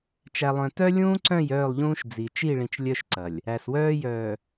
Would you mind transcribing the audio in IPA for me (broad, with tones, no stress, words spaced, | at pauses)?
t͡ʃæ˨lˠœ̃˨tœ˦ lʲũː˦ǀœ̃˦˨j œː˦˨lˠʎũː˦ʃ d͡zi˨ t͡ʃi˦˨ɭĩ˨t͡ʃ lʲœ˦ʃǀɐ˨lʲ | æ˨swœː˦jœː˨